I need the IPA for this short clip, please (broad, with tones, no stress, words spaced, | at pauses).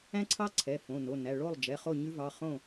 æ̃˦ǀʰɑ˦ ǀʰɛ˩˧˩ fõ˩˧˩ no˩˧˩næ˩˧˩ ɭo˥˨lˠd͡ʒɛ˩˧˩ χo˥˨ɲʉ˦vɑ˩˧˩ χõ˥˨